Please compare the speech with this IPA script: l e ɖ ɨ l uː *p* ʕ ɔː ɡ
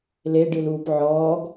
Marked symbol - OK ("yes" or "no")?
yes